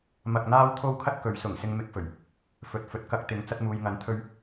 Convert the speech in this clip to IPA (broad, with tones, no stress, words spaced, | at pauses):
mɐ˧k̚n̪aː˥w t̪ʰo˥wkʰɐ˥t̚kɵ˨˧ɥ sʊ˨˩ŋsɪ˧ŋmɪ˧k̚fɵ˨˩ɥ | fɵ˨˥t̚fɵ˨˥t̚ kɐ˧k̚ t̪ɪ˨˥ŋ t͡sɐ˧t̚muː˨j ŋɐ˨˥nt̪ʰɵ˧ɥ